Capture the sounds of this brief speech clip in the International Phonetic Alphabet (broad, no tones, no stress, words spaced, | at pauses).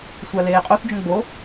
sʷaleːqʼoθd͡ʒõ ɡ͡bo